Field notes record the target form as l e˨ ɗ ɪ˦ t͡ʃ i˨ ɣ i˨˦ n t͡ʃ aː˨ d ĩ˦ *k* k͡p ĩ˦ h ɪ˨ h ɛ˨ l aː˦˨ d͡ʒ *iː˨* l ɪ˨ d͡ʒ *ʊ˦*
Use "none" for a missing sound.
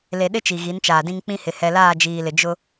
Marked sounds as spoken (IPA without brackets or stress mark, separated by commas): ŋ, iː˨, ʊ˦